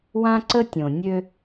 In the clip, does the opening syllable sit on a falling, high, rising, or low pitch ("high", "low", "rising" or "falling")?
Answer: high